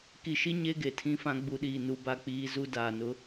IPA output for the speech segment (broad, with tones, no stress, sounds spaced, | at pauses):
k i˨ ʃ i˦ ɲ e˦ ɡ e˨ tʰ ĩ˦ f ã˦ ɡ͡b u˨ ɗ iː˨ n u˨˦ b a˦˨ k͡p iː˦ z u˦ d aː˨ n ʊ˦